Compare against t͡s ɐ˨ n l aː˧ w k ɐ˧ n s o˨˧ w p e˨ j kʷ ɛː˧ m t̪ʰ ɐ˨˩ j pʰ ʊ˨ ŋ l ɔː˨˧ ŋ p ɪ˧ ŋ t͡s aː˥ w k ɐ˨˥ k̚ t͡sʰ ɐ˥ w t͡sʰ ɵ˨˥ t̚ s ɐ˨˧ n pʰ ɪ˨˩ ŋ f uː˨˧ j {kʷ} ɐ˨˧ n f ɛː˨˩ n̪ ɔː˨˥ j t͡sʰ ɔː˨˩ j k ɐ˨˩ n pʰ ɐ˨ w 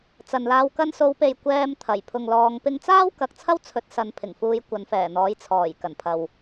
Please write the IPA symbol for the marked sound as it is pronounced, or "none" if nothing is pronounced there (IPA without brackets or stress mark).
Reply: kʷ